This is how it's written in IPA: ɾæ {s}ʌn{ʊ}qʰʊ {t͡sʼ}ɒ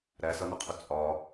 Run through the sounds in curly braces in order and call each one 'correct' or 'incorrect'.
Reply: correct, correct, correct

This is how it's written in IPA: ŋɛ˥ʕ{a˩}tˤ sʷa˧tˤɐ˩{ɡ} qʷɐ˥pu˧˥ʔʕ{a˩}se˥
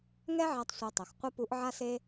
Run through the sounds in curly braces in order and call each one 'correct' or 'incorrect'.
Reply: incorrect, incorrect, incorrect

